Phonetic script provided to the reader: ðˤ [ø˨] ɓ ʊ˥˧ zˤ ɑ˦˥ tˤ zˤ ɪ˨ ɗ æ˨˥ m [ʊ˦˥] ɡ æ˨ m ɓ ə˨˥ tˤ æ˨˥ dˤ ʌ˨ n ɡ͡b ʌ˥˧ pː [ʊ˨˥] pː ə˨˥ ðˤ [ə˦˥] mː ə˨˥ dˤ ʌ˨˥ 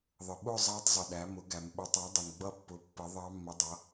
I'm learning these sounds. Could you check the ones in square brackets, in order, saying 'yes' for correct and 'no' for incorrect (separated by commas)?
no, no, yes, no